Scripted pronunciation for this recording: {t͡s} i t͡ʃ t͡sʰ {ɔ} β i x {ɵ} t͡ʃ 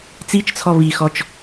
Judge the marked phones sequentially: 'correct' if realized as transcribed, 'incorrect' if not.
correct, correct, incorrect: ɔ

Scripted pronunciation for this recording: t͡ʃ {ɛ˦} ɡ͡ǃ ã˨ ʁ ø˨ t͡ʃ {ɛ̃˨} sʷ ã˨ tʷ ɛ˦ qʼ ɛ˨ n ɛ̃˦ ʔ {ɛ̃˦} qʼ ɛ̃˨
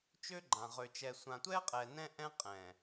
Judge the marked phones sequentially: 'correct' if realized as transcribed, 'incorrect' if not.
incorrect: ø˦, incorrect: ɛ˨, correct

